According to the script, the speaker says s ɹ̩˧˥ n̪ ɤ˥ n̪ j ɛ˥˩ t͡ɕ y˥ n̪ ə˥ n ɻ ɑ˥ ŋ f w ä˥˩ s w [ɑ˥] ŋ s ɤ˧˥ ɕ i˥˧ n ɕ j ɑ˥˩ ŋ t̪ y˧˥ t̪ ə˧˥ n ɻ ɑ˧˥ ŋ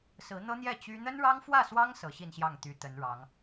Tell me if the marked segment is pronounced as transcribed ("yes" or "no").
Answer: yes